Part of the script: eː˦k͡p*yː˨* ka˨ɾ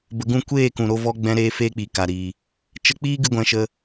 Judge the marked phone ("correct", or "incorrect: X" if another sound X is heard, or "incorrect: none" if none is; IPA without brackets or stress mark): incorrect: iː˨